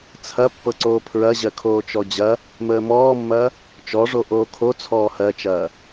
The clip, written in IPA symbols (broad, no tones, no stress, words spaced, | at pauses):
t͡sʰɐ pːɤǀoːpʰɹɐʑɜ kʰoːt͡ʃɔd͡ʑɐ | məːmɔːmːɐː | t͡ʃɔʐo ʔoːkʰo t͡sʰɔːhɜt͡ʃɐː